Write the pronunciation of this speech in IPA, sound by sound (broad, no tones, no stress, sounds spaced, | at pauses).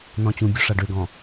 n ɔ̃ t͡ɕ ũ bʲ o ʂ a ɖ ø ɡ ɔ̃